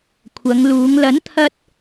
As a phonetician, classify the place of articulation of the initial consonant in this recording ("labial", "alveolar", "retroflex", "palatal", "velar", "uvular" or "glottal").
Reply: velar